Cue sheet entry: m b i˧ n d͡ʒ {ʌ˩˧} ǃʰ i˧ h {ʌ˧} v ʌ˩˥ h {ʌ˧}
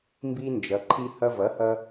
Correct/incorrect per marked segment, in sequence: correct, correct, correct

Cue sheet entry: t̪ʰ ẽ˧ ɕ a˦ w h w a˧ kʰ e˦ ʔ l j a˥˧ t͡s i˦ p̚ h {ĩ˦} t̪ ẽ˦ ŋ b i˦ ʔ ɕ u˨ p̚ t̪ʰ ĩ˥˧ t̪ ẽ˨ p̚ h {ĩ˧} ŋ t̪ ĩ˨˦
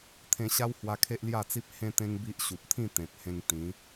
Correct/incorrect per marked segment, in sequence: incorrect, incorrect

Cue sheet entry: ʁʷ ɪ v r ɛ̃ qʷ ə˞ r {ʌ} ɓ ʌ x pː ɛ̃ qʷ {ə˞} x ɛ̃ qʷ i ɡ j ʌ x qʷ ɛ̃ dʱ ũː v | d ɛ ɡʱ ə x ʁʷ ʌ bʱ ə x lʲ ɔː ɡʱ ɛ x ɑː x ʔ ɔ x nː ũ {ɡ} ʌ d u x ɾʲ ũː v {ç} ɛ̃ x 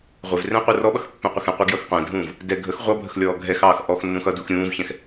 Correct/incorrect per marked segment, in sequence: incorrect, incorrect, incorrect, correct

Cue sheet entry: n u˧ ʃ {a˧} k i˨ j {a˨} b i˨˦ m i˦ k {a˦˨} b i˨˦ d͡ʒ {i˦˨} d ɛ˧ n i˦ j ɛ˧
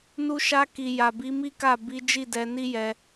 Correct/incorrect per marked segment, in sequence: correct, correct, correct, correct

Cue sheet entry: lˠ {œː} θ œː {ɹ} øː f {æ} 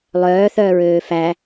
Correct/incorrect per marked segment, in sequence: correct, correct, correct

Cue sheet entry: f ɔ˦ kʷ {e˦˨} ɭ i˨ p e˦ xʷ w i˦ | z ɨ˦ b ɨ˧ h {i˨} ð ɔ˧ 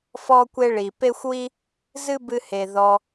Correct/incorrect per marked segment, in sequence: incorrect, incorrect

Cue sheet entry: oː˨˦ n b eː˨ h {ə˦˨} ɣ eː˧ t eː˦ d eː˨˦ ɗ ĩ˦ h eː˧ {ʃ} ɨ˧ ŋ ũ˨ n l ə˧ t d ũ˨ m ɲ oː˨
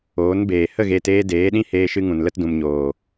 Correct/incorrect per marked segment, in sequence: correct, correct

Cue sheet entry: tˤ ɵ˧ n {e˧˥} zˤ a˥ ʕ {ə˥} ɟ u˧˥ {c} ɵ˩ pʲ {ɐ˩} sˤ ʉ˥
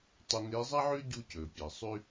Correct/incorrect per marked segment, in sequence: correct, incorrect, correct, correct

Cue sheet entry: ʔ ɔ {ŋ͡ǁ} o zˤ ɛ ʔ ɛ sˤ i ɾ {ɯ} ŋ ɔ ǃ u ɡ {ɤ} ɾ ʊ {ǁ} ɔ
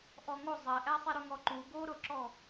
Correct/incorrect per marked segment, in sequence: incorrect, incorrect, incorrect, correct

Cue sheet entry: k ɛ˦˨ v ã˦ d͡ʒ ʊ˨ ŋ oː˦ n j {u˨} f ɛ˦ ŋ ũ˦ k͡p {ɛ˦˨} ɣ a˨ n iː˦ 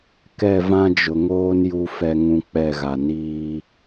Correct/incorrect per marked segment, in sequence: incorrect, correct

